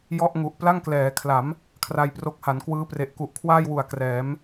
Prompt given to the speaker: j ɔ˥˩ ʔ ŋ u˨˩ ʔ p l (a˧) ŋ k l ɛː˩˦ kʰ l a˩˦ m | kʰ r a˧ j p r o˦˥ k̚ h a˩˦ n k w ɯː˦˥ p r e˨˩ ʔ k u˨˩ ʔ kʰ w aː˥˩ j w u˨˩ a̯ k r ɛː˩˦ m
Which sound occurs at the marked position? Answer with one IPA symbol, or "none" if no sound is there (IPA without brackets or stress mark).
a˥˩